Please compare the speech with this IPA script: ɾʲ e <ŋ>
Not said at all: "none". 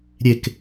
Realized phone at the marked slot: k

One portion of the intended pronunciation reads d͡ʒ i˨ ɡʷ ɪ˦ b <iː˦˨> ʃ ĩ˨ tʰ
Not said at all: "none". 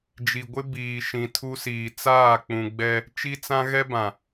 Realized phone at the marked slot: iː˨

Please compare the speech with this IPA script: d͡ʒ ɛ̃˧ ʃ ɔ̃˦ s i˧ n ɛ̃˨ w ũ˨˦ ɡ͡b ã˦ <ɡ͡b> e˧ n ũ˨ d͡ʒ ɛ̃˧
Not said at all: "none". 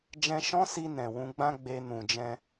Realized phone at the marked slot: ɡ͡b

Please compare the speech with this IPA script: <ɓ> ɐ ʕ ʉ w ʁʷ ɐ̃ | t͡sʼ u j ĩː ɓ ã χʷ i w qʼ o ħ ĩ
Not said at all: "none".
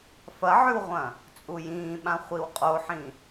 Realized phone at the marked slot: f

